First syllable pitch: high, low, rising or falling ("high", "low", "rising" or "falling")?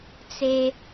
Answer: high